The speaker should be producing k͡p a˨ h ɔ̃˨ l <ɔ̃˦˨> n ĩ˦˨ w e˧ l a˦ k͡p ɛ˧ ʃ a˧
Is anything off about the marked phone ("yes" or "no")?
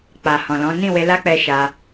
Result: yes